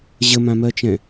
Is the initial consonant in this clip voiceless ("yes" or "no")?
no